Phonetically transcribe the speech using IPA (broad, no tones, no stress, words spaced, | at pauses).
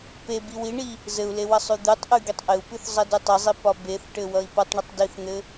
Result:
pe biwiɳi | zɘu̯le wʌsˤʉd̪ʉtˤʔʉ ɡitˤʔɘu̯pʉθ zˤʌdʉtˤɘzˤi pɒbeθʈɘ wʌi̯pʌtˤɳɘtˤ diθn̪ɘ